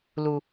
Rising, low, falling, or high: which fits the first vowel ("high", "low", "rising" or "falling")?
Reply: low